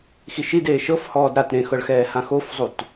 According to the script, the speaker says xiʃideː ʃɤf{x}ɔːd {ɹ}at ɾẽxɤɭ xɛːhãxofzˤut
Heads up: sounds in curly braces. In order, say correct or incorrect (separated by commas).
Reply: incorrect, incorrect